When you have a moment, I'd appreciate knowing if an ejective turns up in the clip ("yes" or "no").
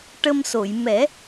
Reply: no